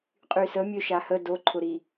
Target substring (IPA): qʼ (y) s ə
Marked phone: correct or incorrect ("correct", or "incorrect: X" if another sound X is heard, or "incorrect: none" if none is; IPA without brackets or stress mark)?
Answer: correct